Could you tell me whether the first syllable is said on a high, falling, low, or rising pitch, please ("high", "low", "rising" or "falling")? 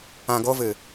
low